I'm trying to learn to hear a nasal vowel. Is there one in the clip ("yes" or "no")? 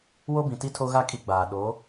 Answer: yes